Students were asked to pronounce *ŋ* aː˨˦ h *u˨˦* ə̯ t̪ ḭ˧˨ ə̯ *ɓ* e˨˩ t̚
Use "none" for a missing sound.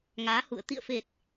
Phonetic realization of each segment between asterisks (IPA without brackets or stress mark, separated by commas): ŋ, ṵ˧˨, f